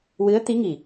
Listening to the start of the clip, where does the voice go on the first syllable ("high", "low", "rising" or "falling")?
rising